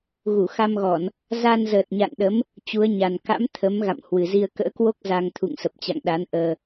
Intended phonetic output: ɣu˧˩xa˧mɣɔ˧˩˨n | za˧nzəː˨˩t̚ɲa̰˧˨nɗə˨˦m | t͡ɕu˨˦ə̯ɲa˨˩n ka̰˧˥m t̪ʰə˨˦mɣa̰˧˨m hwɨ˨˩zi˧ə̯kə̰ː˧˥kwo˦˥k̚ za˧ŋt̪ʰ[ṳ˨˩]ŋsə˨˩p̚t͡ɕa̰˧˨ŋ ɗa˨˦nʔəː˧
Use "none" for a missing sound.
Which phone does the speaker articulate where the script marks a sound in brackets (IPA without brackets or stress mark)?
ṵ˧˨